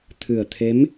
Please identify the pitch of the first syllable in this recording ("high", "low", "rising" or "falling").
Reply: low